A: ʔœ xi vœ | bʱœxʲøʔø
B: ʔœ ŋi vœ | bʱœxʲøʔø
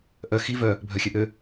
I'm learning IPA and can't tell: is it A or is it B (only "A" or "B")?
A